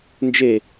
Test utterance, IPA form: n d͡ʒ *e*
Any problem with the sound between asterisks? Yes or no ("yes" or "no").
no